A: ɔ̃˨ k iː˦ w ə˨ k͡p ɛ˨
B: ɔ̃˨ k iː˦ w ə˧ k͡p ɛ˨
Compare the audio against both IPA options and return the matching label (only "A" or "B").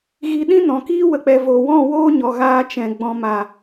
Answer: A